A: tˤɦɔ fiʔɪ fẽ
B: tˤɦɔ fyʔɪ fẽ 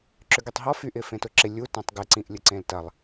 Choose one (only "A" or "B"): B